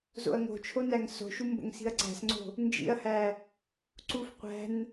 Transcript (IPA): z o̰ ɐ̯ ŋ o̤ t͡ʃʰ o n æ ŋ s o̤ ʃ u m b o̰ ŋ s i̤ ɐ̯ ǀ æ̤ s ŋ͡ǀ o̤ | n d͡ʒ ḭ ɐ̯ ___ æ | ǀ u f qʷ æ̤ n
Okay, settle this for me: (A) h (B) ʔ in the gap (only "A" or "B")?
A